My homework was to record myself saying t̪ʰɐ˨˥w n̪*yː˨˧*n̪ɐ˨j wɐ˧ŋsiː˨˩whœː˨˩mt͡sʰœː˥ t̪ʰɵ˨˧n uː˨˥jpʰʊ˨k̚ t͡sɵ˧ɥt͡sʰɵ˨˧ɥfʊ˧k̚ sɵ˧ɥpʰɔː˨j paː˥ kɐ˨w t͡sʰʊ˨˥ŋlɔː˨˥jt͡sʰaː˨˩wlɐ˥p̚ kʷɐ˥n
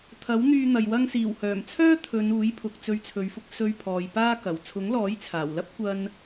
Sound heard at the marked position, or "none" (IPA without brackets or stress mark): yː˧